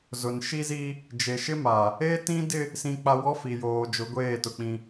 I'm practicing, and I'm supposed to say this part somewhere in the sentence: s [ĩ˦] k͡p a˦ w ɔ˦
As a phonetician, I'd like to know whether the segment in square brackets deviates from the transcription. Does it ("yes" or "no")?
no